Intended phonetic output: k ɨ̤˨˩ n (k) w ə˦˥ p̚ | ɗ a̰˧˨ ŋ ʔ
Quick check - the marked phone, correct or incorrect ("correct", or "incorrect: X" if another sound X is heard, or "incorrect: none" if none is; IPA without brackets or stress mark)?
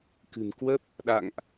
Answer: correct